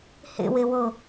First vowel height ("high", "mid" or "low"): mid